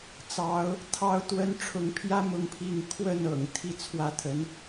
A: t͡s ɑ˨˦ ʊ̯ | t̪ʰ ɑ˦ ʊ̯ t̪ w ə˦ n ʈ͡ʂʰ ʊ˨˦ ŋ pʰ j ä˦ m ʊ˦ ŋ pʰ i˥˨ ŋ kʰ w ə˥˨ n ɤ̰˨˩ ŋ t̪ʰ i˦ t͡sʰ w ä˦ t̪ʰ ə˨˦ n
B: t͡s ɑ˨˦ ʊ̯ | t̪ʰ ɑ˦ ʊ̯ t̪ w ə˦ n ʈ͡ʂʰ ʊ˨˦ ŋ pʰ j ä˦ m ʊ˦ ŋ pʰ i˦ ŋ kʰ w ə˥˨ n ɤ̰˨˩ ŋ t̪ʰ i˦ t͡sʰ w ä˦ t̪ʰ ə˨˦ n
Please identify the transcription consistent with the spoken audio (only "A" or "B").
A